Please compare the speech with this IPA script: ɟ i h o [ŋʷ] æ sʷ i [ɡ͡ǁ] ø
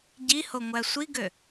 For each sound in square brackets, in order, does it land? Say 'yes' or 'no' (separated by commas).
yes, no